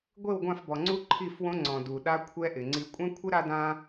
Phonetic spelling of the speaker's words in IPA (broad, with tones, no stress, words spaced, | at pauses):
ɡʷe˦˨wɡʷã˦˨fbɔ˨ŋ͡ǀu˦ ǃʰi˦˨fwõ˦ŋ͡ǀɔ̃˨ du˨ɗa˦kʷʰɛ˦ʔɪ˨ ŋ͡ǀi˨kʷʼɛ̃˦kʷʰɪ˦ ɾa˦dã˦